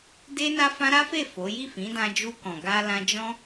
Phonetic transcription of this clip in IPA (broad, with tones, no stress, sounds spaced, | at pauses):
d e˦ n a˦ f ã˦ ɾ a˦ f e˦˨ f o˨˦ j i˦˨ f ĩ˨˦ d ã˧ d͡ʒ u˧ k ɔ̃˨ ɡ a˧ l ã˦ d͡ʒ ɔ̃˦